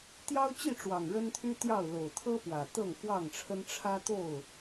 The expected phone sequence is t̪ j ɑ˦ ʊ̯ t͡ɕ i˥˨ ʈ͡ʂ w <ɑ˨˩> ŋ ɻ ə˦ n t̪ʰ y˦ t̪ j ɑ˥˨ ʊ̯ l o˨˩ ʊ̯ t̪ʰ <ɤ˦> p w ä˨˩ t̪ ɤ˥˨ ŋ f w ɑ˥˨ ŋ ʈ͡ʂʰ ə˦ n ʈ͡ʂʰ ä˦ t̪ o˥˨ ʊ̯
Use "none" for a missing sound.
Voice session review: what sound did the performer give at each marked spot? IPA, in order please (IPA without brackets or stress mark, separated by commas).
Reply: ɑ˨˩, ɤ˦